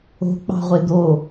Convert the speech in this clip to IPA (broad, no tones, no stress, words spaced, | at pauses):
o̤k͡pɑ̤ʁʷe d̪o